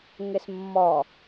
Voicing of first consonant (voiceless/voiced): voiced